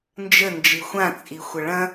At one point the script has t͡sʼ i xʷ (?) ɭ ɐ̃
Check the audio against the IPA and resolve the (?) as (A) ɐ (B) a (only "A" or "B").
A